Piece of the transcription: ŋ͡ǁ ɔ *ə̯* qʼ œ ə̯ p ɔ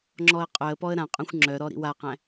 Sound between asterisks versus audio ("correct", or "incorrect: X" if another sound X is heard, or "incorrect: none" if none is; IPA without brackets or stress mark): correct